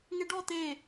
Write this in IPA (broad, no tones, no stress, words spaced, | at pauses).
ŋeɖɔ t̪e